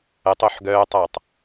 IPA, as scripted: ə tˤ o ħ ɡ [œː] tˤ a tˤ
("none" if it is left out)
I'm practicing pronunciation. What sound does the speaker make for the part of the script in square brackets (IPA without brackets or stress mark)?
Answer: œː